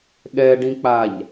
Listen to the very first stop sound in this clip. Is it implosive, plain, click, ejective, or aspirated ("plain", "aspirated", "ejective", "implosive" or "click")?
implosive